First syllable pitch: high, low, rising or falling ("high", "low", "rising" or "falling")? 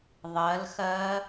rising